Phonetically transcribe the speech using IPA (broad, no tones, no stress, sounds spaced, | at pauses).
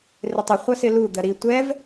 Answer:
r ɪ tˤ ɪ χʷ ʌ s ɪ l u d̪ ɜ ɾ i tʷ ɛ v